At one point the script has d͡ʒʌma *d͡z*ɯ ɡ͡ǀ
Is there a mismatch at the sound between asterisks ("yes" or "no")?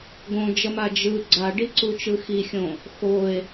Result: yes